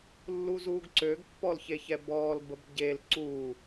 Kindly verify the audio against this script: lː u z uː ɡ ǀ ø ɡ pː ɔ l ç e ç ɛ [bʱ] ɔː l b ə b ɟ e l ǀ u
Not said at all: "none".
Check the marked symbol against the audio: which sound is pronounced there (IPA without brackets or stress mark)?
b